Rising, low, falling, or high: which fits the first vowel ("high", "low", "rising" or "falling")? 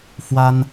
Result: high